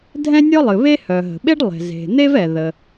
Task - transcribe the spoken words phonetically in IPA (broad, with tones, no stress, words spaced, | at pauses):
dʱɛ̃˥nʲɔ˥lˠɨ˩βe˥ hœ˩ ɦə̤˩ɓe˥ɖlˠe̤˩ ze̤˩n̪e˥v ɛ˩ðə˩